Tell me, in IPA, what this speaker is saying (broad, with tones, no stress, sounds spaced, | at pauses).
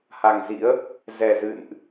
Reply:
h a˨˩ ŋ z ḭ˧˥ ə̯ | z ɛ˨˩ z ɨ̰˧˨ n ʔ